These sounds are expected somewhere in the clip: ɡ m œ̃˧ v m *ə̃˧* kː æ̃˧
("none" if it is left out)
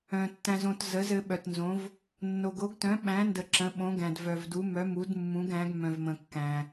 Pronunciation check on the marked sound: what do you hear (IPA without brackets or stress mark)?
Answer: ə̃˧